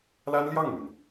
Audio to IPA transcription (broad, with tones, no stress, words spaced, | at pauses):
la˥nljɑ˥˩ŋmy˩n